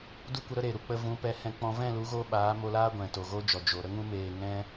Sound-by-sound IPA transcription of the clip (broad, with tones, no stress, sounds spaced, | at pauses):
d u˦ kʷ ə˧ ɾ ə˦ ɾ e˨ ɾ u˨ k͡p ə˧ v ũ˨˦ p ɛ˨˦ h ɛ̃˧ k͡p ɔ̃˧ v ɛ̃˦˨ l u˨˦ ɣ o˧ ɓ aː˨˦ m o˧ l aː˦ ɡʷ ɛ̃˨ t o˨ ɣ o˦ d͡ʒ ɔ˨ d͡ʒ o˨ ɾ ə˦ ŋ ũ˦ m eː˧ ŋ ɛ̃˦